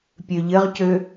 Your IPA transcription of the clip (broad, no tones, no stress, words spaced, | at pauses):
pʲøʎɘʁcø